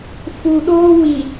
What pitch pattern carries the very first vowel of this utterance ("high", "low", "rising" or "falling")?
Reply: low